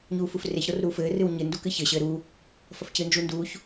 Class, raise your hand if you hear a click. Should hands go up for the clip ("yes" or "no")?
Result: no